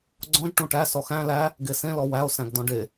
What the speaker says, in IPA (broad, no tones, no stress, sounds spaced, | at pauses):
ɡ͡ǀ ɔ̃ ʒ ʈ ũ ʈ æ s ɔ x æ̃ l æ | ɡ e s ẽ l ɔ w æ o̯ s æ̃ ɡ d ɔ̃ ɖ e